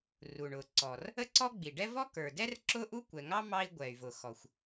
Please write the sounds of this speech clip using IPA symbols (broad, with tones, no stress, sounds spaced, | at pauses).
r u˩ ɳ ʊ˩ ǀ ɔ˩ r | ə˥ ǀ ɔ˥ ɡ͡b i˩ ɖ ɛ˥ v ɔ˥ k ə˞˩ d ɛ˥ r ǁ ʊ˥ ʔ u˥ kʷ ɛ˩ ŋ ɑ˥ m ɑ˥ i̯ ɡʷ ɛ˩ y̯ v ʊ˩ x ɔ˩ xʷ